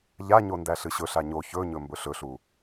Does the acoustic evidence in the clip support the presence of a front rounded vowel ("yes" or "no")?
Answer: no